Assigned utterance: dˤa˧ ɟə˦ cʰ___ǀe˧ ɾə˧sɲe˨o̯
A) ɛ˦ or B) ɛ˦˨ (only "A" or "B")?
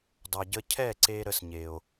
B